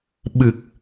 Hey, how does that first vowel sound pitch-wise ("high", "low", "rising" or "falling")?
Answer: low